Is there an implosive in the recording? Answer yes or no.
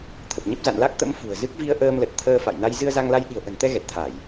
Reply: yes